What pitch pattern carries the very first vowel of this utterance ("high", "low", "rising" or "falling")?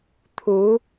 rising